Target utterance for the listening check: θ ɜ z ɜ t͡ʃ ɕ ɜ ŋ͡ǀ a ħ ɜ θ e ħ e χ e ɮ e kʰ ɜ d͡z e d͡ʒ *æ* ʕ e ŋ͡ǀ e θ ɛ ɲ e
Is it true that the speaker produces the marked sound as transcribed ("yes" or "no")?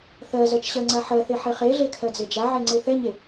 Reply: no